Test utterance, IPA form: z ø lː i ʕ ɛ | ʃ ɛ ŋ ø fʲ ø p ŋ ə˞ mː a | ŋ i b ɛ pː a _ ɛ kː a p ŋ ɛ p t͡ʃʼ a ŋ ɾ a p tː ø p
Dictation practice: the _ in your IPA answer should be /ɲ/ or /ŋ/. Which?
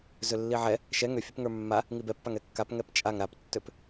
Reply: ŋ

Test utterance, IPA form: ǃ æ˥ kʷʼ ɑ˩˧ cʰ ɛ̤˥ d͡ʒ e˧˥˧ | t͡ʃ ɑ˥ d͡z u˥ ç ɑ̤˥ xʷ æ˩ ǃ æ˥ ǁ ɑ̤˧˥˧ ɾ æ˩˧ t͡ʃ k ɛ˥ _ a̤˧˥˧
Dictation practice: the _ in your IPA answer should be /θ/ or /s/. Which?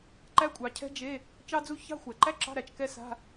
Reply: s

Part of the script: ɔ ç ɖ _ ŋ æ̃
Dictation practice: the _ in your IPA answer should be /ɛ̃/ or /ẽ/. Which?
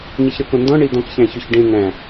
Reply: ẽ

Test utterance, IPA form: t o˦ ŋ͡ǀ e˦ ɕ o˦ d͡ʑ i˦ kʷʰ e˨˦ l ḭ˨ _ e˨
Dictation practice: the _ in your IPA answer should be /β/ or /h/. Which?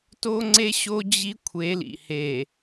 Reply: h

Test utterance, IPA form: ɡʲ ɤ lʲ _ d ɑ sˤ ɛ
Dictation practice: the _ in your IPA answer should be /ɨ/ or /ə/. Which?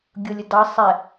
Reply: ə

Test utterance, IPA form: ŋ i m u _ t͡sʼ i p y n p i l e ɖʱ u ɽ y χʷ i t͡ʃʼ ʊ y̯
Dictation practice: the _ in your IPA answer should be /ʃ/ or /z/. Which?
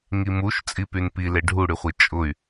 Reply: ʃ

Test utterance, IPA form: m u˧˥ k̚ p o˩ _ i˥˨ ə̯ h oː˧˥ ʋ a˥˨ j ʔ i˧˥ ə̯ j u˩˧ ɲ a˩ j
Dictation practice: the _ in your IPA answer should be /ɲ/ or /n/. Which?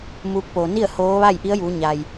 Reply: n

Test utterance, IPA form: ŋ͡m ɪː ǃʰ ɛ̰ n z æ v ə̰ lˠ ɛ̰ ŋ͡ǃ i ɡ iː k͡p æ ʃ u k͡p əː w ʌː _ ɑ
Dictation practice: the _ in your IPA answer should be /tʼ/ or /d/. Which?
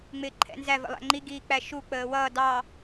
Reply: d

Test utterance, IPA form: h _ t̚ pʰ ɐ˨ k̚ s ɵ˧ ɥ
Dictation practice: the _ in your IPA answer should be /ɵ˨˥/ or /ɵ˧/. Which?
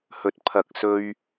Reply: ɵ˧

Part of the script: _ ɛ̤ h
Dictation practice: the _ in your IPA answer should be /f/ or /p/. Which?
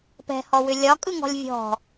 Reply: p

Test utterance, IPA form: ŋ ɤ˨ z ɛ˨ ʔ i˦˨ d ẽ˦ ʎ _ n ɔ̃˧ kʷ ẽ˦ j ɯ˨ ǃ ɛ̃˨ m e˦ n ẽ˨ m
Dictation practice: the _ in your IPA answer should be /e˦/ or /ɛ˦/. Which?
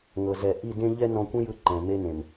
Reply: ɛ˦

